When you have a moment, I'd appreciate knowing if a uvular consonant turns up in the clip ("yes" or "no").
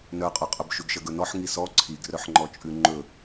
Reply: yes